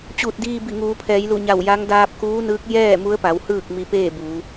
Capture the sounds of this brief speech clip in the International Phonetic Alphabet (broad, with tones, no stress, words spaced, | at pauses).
t͡ɕuː˧˩t̚diː˧ bi˧˩ŋuː˩˧pʰɛː˩˧jlu˧˩ ɲa˧˩w ja˧˥ŋ daː˧p̚kuː˧˥nɯː˧˥k̚ jɛː˥˨ mu˧˥ə̯pa˩˧w hɯː˥˨k̚ mi˧peː˥˨ buː˩˧